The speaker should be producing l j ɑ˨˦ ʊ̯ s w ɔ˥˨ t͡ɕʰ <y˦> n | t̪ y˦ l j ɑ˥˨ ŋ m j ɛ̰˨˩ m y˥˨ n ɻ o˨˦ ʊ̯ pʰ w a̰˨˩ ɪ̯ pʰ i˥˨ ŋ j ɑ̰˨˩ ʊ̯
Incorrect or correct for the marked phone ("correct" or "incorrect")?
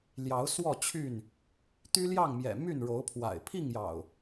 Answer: incorrect